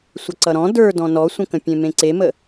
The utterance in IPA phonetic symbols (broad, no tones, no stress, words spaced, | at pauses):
sʷʌǀʌɾɔ̃ də˞ dɔ̃nɔsʷə̃kə̃ pʲẽmẽǀemə